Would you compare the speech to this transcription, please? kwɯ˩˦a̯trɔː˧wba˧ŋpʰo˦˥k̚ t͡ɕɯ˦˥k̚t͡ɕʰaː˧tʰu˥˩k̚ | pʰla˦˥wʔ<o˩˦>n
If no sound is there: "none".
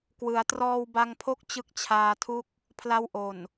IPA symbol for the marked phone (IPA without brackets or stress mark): o˨˩